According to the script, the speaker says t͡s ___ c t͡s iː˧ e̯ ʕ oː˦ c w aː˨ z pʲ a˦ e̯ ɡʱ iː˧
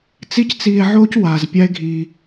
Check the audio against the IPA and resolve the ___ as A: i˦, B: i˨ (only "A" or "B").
A